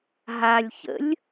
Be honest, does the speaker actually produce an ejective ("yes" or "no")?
no